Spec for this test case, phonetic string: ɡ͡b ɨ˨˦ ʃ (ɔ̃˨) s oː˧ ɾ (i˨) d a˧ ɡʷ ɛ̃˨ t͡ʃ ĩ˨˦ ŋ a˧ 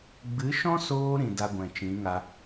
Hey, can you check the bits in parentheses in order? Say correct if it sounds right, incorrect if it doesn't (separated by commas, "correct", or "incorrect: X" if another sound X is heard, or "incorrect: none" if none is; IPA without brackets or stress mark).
incorrect: ɔ̃˦, incorrect: ĩ˨